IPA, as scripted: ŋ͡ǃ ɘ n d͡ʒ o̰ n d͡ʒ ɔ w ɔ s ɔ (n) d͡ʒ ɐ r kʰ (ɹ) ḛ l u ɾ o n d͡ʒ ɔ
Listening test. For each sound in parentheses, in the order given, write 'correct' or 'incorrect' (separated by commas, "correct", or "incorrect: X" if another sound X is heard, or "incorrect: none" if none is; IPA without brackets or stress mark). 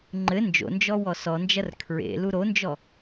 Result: correct, correct